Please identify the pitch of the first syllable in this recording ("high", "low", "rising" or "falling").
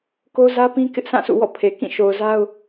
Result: high